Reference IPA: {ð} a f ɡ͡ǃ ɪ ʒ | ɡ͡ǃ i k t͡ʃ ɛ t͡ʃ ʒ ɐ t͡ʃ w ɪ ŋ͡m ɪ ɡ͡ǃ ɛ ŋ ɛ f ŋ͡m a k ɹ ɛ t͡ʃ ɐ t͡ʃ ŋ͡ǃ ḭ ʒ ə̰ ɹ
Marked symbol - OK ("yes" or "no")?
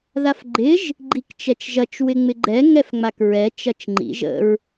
yes